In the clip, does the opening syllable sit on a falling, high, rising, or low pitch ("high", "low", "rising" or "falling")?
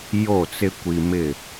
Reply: falling